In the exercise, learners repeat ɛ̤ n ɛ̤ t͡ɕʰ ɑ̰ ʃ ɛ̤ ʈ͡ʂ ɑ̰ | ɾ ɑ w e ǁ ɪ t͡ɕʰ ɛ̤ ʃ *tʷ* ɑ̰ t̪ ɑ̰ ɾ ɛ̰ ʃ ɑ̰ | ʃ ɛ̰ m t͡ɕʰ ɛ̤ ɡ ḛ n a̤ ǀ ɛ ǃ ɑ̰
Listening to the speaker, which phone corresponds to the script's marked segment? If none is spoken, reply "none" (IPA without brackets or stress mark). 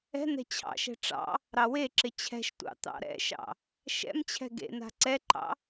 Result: tʷ